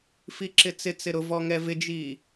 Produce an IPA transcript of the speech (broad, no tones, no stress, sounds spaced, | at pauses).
f i ǁ ɪ t͡s ɪ t͡s ɪ ɾ ʊ v ɔ ŋ ɛ v ɪ d͡ʒ iː